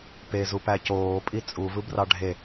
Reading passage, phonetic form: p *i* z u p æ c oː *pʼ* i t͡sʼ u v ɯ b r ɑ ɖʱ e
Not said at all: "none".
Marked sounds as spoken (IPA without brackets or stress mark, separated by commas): e, pʼ